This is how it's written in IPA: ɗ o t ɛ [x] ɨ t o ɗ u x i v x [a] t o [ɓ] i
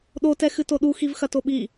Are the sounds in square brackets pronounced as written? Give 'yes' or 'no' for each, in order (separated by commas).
yes, no, yes